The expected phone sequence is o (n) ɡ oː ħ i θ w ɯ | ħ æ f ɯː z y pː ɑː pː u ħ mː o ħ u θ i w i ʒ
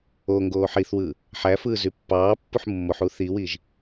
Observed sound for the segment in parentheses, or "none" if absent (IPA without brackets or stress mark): ŋ